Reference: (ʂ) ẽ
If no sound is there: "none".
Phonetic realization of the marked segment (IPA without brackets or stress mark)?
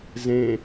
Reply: z